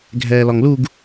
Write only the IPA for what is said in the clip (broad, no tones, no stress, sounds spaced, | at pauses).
ɡʱ ɛː l ɒ ŋ l u ɡ